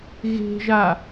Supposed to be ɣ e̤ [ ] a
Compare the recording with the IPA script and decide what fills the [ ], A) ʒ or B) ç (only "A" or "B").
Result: A